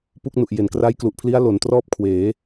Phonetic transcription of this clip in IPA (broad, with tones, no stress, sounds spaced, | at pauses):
p u˥˩ k̚ n u˨˩ ʔ j e˩˦ n k r a˦˥ j k l u˨˩ ʔ pʰ l i˦˥ a̯ l o˩˦ n t r ɔː˥˩ p̚ kʰ w eː˩˦